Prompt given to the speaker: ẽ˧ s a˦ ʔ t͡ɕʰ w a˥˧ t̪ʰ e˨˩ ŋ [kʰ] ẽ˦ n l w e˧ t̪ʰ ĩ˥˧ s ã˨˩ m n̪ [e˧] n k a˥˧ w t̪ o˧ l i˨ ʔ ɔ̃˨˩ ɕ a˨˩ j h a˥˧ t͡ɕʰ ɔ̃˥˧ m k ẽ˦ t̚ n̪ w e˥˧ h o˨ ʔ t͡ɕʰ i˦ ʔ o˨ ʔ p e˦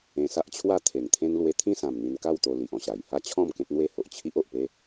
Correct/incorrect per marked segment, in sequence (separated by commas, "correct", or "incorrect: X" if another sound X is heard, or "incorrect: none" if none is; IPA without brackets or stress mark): incorrect: t̪ʰ, incorrect: i˧